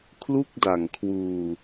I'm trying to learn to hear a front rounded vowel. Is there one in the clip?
no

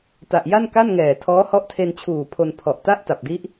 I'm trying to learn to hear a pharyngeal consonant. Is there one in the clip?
no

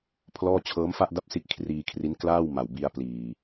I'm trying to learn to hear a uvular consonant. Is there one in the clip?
no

